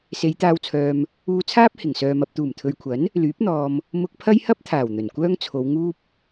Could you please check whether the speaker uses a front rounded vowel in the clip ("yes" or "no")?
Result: yes